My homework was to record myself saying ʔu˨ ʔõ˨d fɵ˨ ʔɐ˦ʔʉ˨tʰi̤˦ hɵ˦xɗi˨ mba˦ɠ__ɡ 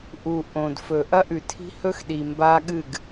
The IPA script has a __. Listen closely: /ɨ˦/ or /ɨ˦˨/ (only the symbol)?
ɨ˦˨